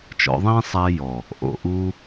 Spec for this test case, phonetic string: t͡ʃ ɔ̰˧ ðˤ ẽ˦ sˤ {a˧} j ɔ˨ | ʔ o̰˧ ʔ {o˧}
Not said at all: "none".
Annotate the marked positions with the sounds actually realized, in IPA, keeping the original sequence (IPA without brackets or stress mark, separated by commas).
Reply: æ˧, u˧